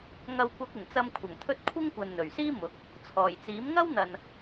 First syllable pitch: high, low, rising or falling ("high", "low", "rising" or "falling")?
low